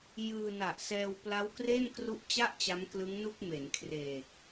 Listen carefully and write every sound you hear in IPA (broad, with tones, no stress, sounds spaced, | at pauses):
j ɯː˧ n a˨˩ ʔ s ɛː˧ w p l a˦˥ w k r e˥˩ n k r u˦˥ ʔ t͡ɕ a˥˩ ʔ t͡ɕ a˦˥ m k l ɯ˦˥ ŋ n u˥˩ k̚ m e˩˦ n kʰ r eː˨˩ k̚